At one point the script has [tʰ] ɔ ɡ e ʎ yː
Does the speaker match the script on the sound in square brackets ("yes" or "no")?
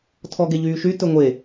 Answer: yes